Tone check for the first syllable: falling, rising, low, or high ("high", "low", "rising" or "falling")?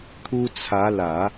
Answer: high